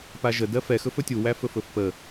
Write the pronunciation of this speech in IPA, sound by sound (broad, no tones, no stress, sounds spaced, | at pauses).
p a ʒ ə d ɜ f ɛ x ɵ f ɵ tʲ u w æ f ɵ f ɵ f p ə